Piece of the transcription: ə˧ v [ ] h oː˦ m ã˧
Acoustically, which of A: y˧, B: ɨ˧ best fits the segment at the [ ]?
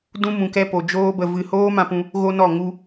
B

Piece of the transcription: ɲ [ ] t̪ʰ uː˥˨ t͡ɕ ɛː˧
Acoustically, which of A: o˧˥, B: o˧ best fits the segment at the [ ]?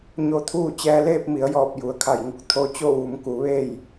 B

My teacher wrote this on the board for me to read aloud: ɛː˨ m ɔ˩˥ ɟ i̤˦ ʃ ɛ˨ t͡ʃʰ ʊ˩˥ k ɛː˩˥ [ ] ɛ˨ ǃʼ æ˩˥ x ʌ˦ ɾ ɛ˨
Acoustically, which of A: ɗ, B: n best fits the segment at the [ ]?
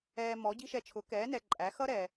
B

